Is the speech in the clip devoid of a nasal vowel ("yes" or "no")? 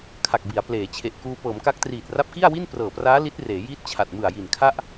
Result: yes